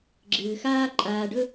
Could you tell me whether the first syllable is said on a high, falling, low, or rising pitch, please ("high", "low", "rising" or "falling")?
low